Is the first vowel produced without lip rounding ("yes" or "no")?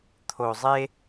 no